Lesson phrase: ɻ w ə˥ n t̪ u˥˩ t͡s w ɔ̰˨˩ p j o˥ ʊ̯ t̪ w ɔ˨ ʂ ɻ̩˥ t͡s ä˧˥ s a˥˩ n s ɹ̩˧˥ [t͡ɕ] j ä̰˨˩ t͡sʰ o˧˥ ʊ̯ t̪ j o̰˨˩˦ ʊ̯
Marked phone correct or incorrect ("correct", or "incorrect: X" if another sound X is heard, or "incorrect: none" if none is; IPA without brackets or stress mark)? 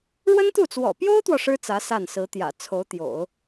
incorrect: t̪